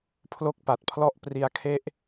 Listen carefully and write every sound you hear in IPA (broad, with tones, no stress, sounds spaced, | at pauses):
pʰ l o˥˩ k̚ p a˨˩ t̚ pʰ l ɔ˥˩ ʔ p r i˦˥ a̯ kʰ e˥˩ ʔ